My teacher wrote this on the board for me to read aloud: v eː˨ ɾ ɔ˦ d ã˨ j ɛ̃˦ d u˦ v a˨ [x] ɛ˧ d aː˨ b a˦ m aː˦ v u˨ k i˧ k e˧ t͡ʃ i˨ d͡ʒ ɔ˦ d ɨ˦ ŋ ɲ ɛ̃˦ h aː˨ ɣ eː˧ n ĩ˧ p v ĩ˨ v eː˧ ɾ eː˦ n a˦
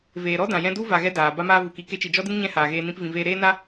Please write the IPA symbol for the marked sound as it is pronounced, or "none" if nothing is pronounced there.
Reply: ɣ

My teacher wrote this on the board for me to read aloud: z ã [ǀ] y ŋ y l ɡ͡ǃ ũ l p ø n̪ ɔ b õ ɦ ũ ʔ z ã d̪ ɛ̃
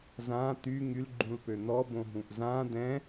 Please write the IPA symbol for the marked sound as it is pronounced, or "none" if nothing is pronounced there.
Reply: t̪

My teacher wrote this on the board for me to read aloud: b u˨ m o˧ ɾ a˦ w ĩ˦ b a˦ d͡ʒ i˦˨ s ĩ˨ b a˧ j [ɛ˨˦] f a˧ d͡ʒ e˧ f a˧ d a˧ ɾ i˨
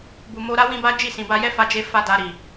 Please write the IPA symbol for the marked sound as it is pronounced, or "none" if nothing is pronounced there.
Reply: ɛ˦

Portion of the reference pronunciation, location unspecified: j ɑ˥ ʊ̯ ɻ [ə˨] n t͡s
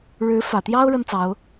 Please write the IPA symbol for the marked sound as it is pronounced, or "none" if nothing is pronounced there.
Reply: ə˥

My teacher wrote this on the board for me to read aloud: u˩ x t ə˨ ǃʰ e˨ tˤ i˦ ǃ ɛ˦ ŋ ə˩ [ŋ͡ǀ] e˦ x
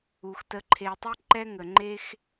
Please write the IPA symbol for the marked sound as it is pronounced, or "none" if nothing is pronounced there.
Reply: ŋ͡ǃ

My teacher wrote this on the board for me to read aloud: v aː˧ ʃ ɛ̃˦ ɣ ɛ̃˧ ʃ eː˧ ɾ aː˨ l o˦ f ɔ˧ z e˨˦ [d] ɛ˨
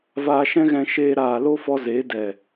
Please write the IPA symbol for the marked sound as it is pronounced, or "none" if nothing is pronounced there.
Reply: d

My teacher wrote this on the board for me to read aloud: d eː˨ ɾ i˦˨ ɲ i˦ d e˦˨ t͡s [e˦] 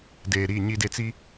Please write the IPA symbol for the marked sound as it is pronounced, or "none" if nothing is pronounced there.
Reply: i˦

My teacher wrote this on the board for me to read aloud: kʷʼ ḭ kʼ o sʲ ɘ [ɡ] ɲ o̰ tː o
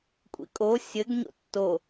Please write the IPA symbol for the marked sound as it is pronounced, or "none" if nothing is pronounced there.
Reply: ɡ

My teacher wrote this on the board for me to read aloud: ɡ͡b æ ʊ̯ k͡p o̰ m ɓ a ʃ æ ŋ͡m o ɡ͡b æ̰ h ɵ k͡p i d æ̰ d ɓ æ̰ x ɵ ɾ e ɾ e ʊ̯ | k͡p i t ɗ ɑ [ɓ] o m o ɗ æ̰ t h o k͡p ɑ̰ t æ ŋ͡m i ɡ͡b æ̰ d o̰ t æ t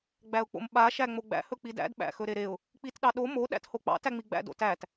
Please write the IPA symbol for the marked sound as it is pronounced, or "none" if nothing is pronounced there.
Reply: ɗ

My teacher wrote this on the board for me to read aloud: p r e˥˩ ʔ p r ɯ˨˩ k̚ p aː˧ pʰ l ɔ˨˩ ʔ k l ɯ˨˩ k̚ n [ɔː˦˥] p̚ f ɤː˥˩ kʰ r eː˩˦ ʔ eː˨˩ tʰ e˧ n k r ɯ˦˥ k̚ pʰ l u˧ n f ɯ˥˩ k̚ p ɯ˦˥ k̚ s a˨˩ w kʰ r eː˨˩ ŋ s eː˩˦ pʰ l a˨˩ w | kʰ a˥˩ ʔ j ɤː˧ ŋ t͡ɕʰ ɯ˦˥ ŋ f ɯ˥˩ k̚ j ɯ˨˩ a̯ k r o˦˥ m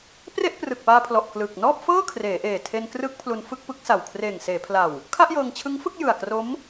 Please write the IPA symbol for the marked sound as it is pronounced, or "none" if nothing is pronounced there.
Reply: ɔː˥˩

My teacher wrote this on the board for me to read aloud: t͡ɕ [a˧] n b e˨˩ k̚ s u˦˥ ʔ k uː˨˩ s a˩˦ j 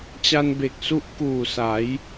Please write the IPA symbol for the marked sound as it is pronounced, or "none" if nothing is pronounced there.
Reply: a˧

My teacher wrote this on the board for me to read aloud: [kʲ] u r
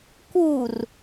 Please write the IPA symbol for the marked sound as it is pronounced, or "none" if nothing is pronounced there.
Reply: k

